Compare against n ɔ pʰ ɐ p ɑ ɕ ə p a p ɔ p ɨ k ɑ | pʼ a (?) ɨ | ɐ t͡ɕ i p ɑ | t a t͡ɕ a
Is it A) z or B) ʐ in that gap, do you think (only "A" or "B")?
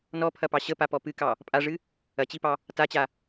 B